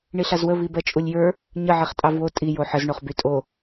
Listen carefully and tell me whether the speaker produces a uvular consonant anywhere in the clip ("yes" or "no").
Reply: yes